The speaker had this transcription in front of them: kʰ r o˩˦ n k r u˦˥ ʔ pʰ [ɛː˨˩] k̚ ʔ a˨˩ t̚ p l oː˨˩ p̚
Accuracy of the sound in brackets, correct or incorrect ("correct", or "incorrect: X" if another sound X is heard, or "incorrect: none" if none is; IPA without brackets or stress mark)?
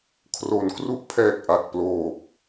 correct